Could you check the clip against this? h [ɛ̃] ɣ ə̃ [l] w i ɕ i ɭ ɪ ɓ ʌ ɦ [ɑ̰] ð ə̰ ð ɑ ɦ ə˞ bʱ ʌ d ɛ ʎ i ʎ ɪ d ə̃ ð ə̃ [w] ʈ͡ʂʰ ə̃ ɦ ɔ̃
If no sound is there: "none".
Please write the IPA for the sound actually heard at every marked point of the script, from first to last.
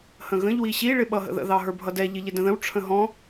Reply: ə̃, ʎ, ə̰, w

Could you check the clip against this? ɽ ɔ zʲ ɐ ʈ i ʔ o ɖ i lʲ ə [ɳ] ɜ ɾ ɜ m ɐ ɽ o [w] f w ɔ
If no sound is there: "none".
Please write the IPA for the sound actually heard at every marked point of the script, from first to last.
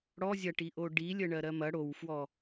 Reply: ɳ, w

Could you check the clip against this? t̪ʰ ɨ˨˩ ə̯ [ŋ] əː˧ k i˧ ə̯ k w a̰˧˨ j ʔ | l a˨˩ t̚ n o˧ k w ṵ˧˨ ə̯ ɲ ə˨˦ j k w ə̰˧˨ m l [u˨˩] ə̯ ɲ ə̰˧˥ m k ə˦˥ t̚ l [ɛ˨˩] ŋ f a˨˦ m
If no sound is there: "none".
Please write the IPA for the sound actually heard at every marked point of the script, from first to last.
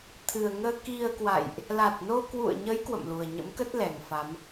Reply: ŋ, u˨˩, ɛ˨˩

